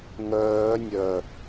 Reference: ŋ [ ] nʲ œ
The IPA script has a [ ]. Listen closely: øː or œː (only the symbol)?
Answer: œː